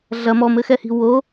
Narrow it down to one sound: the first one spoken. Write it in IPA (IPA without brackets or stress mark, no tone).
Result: ɮ